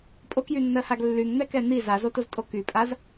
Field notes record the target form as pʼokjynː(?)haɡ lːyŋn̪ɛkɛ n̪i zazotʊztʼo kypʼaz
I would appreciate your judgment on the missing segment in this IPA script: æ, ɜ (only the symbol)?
ɜ